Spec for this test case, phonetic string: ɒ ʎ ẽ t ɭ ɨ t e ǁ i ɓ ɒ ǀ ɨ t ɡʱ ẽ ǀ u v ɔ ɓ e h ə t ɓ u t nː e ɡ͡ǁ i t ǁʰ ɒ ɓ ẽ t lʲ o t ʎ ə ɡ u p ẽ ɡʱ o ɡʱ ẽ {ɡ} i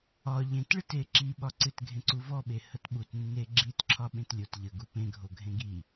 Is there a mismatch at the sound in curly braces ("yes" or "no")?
no